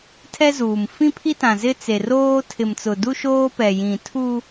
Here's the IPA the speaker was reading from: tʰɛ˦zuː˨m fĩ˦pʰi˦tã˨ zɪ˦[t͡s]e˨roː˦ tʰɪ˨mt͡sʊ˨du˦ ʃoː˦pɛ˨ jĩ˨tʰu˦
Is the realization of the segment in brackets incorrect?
no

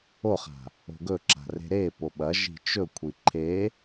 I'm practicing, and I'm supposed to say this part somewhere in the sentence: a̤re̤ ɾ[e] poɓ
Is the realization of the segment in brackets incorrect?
no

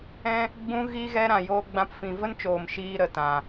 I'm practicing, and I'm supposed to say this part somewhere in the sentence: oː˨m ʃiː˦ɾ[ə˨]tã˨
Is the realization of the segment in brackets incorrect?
no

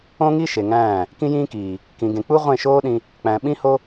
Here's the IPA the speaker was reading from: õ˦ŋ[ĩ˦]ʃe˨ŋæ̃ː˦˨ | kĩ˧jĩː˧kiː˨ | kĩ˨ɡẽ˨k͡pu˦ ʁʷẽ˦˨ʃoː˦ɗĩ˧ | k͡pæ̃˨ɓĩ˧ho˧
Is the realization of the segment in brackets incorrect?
yes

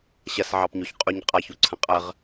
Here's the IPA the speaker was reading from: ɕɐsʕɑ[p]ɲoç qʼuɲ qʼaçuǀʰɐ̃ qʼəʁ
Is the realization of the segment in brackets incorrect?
no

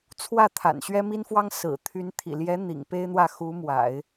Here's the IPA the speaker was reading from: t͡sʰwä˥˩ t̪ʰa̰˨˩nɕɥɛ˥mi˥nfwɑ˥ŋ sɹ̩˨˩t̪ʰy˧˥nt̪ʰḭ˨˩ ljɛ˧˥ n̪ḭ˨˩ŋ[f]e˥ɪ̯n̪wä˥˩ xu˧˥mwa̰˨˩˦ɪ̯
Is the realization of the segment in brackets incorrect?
yes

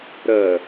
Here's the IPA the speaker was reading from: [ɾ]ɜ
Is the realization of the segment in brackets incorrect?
no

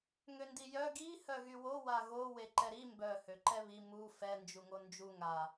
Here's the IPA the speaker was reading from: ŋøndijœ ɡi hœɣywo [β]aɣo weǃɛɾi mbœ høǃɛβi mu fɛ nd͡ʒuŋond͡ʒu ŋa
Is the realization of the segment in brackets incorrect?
yes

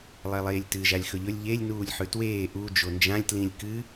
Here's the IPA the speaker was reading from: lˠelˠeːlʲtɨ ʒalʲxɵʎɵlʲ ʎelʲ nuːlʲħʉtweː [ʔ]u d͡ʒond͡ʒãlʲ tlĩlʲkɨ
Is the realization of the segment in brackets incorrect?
no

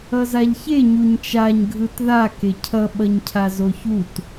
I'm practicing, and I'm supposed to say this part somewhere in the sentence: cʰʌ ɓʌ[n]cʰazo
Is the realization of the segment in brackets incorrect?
yes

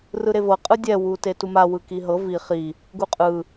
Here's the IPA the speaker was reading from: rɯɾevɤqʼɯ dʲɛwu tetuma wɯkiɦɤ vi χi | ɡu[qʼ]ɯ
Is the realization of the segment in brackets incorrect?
no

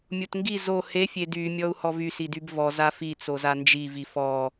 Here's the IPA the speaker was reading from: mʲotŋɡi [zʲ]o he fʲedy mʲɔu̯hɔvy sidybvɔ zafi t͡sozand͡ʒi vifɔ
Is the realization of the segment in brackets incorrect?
yes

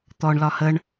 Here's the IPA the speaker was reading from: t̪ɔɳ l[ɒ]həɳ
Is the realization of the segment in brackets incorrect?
no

